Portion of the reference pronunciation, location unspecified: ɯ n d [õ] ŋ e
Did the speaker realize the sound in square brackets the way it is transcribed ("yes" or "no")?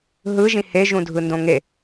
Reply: yes